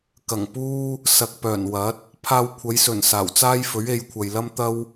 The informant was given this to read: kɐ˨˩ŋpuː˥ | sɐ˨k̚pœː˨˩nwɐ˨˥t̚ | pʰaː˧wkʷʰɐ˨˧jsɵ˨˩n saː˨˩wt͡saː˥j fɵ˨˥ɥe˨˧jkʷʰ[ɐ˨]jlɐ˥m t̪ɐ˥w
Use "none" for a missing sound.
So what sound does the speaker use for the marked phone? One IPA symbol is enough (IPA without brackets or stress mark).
ɐ˨